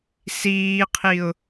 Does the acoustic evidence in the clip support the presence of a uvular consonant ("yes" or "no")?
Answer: yes